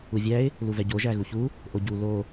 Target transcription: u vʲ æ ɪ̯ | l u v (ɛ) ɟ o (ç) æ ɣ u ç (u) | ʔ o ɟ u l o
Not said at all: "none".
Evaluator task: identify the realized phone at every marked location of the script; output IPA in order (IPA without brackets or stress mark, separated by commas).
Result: ɛ, ʒ, u